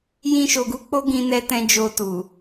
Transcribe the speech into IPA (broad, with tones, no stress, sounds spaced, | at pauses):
j ĩ˧ ʃ o˨ ɡ u˧ k͡p o˦ ɡ ĩ˧ n ɛ˧ t ɛ̃˧ d͡ʒ o˧ t u˨